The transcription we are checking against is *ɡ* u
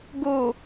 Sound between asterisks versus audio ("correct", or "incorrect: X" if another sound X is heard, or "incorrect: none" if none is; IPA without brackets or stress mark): correct